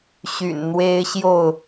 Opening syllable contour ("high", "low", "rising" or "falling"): low